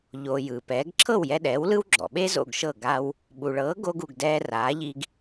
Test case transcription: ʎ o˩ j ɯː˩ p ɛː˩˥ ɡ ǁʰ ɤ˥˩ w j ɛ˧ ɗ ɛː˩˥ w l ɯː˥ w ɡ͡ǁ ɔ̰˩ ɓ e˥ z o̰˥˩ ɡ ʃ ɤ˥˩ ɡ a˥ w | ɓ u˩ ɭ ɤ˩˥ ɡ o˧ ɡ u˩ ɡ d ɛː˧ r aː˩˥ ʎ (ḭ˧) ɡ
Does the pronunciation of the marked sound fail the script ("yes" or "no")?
yes